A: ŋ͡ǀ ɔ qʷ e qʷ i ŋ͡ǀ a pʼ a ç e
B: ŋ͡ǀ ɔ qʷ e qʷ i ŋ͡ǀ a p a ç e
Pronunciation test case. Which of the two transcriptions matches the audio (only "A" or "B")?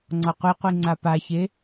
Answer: B